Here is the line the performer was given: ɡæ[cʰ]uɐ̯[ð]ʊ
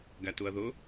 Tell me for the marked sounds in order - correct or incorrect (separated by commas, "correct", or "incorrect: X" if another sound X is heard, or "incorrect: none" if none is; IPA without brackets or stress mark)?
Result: incorrect: t, correct